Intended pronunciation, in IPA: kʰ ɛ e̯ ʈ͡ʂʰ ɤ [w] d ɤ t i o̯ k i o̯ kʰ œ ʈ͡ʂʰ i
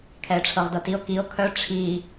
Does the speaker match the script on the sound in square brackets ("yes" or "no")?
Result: no